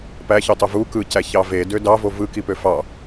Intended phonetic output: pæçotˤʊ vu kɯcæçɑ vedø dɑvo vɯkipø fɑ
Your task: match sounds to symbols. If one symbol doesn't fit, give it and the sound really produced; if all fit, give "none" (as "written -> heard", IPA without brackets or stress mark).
ʊ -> ɯ